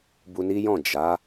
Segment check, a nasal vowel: present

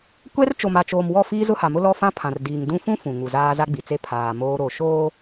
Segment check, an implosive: absent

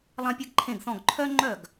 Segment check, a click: present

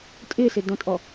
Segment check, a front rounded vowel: absent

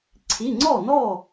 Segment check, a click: present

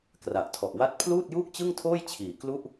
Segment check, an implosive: absent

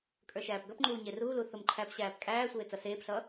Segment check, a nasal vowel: absent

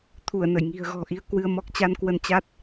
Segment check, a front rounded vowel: absent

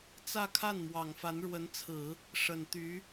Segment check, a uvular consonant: absent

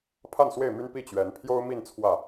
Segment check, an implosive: absent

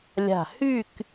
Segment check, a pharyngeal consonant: absent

